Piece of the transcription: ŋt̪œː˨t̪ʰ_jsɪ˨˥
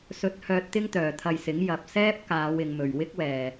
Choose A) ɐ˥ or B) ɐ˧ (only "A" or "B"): B